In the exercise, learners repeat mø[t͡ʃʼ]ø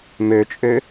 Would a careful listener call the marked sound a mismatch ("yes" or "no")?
no